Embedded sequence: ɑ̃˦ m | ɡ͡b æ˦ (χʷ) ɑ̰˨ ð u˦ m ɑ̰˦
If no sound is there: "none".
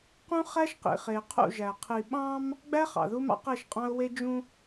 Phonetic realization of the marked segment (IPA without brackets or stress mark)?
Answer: χ